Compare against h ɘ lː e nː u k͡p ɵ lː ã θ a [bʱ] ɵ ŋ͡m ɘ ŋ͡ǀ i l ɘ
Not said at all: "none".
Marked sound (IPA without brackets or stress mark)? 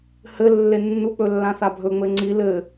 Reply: bʱ